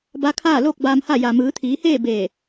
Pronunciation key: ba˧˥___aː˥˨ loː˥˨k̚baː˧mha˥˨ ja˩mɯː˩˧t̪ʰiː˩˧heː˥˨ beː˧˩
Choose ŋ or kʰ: kʰ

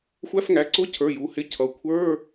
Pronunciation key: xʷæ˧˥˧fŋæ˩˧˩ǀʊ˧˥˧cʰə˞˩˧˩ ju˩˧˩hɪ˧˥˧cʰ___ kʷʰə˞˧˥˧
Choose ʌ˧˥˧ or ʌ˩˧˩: ʌ˩˧˩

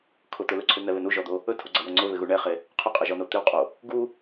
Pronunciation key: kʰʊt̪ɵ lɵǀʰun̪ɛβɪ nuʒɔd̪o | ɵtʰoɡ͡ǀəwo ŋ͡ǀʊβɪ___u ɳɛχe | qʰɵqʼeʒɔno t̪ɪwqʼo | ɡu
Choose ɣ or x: ɣ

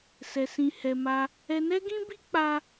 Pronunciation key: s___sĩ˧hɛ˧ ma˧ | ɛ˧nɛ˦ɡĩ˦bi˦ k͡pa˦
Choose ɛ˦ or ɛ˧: ɛ˧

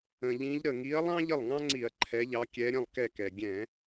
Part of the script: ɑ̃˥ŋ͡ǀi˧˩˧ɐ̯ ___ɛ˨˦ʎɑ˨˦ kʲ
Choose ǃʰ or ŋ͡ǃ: ǃʰ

